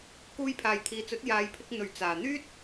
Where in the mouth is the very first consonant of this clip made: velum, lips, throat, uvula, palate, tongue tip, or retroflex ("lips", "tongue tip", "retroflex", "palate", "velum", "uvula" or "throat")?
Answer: velum